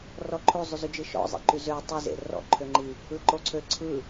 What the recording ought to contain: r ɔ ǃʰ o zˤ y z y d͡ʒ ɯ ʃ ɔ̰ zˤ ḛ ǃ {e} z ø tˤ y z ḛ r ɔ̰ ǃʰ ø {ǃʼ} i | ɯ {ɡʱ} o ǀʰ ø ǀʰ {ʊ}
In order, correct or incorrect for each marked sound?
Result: incorrect, incorrect, incorrect, incorrect

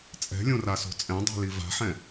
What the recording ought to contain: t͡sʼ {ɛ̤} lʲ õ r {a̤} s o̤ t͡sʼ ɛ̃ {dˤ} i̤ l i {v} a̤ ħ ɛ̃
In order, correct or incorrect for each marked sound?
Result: correct, incorrect, correct, correct

